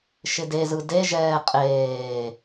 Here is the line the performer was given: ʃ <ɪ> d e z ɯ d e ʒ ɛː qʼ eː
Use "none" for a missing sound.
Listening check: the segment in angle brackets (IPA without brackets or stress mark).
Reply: ɪ